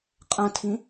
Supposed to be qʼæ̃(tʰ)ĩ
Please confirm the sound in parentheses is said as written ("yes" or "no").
yes